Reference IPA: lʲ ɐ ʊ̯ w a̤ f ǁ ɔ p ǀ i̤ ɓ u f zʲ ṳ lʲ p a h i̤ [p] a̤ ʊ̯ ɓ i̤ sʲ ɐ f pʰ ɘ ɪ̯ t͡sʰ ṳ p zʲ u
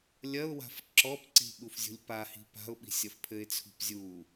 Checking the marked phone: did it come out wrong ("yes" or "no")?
no